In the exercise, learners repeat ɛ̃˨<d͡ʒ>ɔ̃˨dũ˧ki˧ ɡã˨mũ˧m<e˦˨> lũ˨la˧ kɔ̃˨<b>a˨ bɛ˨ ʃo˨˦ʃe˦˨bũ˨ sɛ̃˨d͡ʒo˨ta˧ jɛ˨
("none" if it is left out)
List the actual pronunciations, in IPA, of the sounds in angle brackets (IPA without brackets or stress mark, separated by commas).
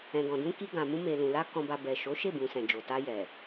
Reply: ɡ, e˨, b